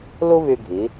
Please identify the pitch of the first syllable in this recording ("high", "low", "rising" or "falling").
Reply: high